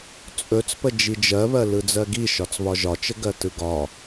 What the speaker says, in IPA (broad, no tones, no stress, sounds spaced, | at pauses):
t͡sʼ ɵ t͡s p ə d͡ʒ i d͡ʒ ɜ β ɜ l ɯ d͡z ɜ ɡ i ʃ ɒ t͡s β ɒ ʒ ɒ t͡ʃ ə ɡ ɜ t ɯ ɡ ɒ